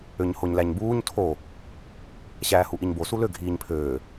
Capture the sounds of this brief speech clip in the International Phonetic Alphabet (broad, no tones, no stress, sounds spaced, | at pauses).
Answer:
ø ɲ h o ɲ l æ ɲ b uː ɲ tʰ o | ɕ æː h u ʔ i ɲ b o s u l ø ɡʱ iː ɲ pʰ øː